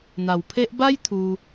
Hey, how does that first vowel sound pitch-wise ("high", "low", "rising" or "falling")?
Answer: low